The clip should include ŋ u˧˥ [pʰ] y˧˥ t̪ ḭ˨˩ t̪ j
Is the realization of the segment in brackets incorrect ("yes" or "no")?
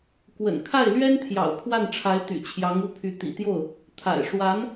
no